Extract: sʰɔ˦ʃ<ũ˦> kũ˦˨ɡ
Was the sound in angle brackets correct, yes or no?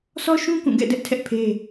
yes